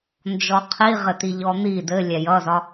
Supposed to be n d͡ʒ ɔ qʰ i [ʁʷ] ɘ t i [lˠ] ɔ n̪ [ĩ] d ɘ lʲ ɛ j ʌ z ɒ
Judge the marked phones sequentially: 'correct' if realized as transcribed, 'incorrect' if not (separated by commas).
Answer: incorrect, incorrect, incorrect